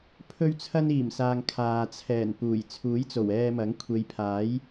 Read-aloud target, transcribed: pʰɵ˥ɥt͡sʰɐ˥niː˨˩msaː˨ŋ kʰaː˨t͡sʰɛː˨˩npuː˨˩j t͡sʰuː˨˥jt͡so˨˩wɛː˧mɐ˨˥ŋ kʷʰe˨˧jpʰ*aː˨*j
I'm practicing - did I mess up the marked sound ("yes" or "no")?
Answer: yes